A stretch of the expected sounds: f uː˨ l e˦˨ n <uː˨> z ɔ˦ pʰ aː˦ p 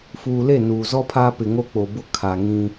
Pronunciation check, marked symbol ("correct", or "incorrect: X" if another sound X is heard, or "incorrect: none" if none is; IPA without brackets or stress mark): correct